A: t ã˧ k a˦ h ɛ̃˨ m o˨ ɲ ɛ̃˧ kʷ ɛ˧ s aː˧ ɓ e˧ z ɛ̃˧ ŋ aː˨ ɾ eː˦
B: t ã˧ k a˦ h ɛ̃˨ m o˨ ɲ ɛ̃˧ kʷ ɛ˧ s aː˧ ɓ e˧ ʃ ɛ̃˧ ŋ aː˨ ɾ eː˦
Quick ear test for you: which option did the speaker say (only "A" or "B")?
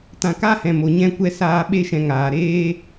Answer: B